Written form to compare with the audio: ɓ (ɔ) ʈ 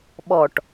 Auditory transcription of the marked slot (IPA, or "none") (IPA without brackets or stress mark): ɔ